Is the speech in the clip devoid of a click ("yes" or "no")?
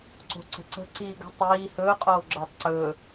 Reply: no